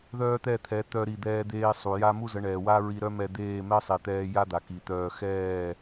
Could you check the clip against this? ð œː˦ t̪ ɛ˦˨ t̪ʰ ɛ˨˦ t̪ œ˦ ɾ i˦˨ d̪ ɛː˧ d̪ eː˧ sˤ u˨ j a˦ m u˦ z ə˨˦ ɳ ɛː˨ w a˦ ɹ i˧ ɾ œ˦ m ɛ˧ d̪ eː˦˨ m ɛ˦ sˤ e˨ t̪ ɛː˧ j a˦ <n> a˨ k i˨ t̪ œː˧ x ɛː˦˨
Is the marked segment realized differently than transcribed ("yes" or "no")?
yes